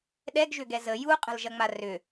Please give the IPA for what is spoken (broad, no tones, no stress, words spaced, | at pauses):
ɗɛɡʒʏɡɛ zə juqʼə̤lʒɐŋ͡ma rʏ